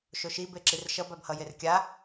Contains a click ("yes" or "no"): yes